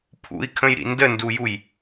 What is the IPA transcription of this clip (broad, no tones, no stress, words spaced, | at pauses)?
pʰṵi̯kʰə̃jɾḭ ndəndujuj